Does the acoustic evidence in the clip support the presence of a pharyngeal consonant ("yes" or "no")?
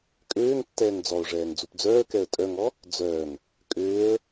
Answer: no